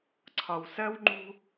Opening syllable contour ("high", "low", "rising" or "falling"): low